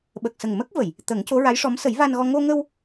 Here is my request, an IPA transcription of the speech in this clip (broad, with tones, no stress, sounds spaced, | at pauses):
ɓ ə˨˩ k̚ s ə˨˩ ŋ m ə˦˥ k̚ v ə˨˩˨ j | t̪ ə˨˩˦ ŋ c o˧˥ ɹ a˧˥ j ʂ ɔ˧˥ m s ə˨˩˦ j v a˧ n ɣ ɔ˧ ŋ o˧ ŋ ə˧ w